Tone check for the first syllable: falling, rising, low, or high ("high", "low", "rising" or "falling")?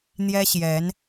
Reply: high